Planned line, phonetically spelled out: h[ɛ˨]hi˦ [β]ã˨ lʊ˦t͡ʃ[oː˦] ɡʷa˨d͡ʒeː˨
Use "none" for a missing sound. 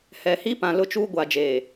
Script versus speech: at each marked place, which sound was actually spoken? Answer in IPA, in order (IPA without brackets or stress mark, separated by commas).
ɛ˨, p, uː˦